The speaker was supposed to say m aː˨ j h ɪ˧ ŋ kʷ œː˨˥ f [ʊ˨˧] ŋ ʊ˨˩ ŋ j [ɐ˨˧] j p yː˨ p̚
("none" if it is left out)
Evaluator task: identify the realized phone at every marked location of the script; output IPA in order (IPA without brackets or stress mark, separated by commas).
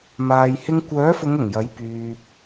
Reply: ʊ˨˧, ɐ˨˥